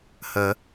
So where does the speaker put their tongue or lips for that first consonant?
throat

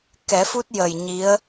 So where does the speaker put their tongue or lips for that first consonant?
velum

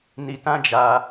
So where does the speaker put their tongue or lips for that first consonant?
tongue tip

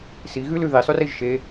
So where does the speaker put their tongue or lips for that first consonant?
tongue tip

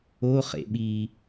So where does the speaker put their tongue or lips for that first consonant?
uvula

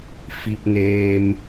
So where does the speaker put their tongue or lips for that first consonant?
lips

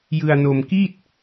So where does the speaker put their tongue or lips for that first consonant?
palate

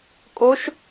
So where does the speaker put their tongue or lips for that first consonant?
velum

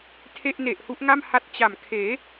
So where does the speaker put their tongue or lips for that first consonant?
tongue tip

